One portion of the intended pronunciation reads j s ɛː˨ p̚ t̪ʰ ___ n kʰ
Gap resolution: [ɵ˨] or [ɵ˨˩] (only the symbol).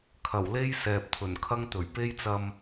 ɵ˨˩